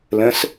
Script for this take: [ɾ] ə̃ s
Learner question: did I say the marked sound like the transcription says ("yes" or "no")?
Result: no